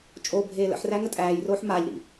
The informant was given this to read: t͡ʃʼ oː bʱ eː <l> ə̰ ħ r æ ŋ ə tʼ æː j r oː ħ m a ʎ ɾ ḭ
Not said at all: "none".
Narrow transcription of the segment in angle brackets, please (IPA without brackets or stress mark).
l